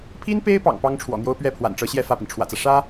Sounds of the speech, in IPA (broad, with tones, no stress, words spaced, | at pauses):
pʰi˥npe˥ɪ̯pɑ̰˨˩ŋ pɑ˥ŋʈ͡ʂʰwɔ̰˨˩n̪jo˥ʊ̯ pɥɛ˥˩ pʰwa̰˨˩nʈ͡ʂɤ˧˥ɕjɛ˥˧ fä˥˩pi˩nʈ͡ʂʰwä̰˨˩t͡sä˦ ʂä˥